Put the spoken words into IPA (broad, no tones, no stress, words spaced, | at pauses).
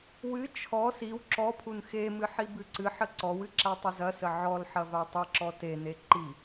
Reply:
wɨ t͡ʃʰɔ siw ǁɔpʰun xemɨ ħibɨǀɨħə ǀɔwɨ ǁatˤɐzɐsə ʕɔlħɐ vatˤɨǁɔ tene ǃi